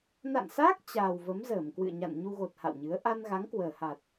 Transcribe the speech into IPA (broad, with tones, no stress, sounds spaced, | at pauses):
n a̰˧˨ n s aː˦˥ k̚ t͡ɕ aː˨˩ w v ə˨˦ m z əː˧˩ m k w ɨ̰˧˨ ə̯ ɲ a̰˧˨ n ɲ u˧ ɣ o˨˩ t̚ h a̰˧˨ w ɲ ɨ˨˦ ə̯ ʔ a˧ n ɣ a˨˦ ŋ k w əː˨˩ h a˨˩ t̚